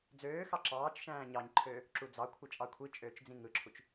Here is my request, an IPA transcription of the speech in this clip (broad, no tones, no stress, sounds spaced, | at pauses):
d͡z øː x ɑ ǁ ɑː t͡ʃ ʃ æ̃ː ɲ ɑ ɲ ǃʰ øː | ǁ u d͡z ɑ kʷʰ ɯ t͡ʃʼ ɑ kʷʰ i t͡ʃʼ øː t͡ʃ d͡z ĩ ŋ ɯ ǁʰ u t͡ʃ